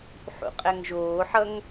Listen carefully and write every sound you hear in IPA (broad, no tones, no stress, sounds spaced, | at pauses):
ħ ṵ qʼ ɛ ŋ ʒ oː ħ ʌ ŋ